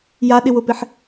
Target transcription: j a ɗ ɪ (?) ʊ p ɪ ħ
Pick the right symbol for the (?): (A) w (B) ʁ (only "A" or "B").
A